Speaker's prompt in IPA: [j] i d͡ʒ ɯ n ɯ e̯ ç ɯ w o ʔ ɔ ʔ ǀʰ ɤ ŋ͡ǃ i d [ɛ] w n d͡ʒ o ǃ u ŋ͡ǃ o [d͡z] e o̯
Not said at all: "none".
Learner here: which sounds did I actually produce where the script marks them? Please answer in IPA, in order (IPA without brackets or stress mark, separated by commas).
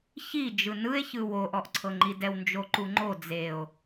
ç, ɛ, d͡z